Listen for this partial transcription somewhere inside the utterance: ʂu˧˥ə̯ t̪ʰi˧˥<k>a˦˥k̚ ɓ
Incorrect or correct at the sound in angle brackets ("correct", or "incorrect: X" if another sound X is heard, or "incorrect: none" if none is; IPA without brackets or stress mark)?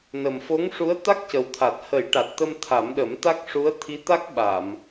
incorrect: t̪